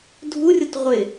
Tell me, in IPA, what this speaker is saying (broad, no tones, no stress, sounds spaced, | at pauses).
dʱ u rʲ ʊ t ʁʷ ɪ